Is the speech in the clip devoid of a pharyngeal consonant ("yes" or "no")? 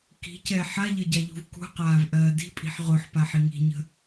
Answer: no